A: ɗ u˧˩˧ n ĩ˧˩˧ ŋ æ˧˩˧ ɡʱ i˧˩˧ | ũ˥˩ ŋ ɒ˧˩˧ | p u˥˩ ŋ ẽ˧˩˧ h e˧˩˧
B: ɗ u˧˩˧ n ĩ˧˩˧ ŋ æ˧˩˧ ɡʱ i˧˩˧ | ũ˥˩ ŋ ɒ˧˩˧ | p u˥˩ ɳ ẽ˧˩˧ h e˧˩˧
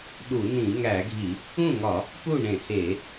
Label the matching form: B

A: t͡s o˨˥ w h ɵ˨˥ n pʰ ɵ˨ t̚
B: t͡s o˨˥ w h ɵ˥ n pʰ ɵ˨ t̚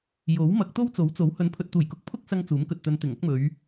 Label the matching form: A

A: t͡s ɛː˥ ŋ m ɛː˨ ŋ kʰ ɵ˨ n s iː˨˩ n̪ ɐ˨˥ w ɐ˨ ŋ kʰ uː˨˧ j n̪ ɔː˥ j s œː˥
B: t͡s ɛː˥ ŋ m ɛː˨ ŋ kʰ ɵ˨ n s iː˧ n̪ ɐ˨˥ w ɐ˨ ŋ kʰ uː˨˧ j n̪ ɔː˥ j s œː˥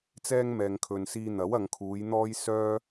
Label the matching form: B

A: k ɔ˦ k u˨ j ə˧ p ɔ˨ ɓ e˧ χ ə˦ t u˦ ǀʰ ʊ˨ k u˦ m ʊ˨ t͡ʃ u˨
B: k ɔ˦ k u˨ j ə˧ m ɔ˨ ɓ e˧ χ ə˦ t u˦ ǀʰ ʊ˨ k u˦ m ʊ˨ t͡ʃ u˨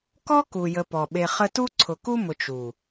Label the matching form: A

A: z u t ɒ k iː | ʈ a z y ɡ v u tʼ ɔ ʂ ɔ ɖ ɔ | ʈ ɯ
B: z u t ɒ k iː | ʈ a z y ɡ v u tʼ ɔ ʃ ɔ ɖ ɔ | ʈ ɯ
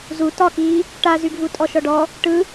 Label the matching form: B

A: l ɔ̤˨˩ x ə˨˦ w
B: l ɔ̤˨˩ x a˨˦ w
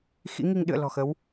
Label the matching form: A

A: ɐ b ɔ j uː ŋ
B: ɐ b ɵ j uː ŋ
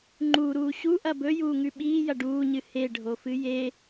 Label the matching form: B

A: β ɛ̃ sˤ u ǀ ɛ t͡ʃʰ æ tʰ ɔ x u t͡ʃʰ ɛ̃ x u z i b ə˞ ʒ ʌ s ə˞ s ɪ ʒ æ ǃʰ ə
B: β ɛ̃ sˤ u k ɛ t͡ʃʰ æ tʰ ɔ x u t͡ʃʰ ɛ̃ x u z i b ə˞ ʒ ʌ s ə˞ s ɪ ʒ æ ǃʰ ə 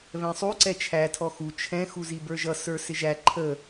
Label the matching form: A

